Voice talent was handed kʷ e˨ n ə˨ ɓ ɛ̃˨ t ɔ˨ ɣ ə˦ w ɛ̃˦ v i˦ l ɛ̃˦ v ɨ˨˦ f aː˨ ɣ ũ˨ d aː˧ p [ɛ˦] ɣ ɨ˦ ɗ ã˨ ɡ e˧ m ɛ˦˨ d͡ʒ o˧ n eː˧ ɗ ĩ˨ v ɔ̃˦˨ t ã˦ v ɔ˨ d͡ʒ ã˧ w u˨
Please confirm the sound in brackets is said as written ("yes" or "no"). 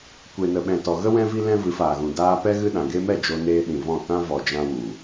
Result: yes